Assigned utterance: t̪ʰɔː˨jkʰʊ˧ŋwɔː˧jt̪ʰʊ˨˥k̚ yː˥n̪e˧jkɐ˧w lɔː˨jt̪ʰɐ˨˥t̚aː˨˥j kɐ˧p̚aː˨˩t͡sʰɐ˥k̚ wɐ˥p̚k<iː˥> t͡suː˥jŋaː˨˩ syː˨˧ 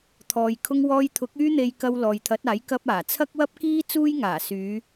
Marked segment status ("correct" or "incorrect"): correct